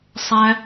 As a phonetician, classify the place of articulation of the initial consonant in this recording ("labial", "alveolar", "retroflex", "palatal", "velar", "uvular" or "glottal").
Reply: alveolar